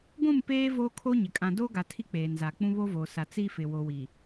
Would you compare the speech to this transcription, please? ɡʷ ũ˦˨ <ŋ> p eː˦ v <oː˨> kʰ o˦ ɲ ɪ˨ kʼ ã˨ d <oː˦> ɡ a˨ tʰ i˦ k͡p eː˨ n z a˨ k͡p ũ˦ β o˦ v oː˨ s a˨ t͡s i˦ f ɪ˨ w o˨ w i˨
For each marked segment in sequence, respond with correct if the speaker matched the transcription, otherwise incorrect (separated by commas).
incorrect, incorrect, correct